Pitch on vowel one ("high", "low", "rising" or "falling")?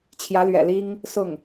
rising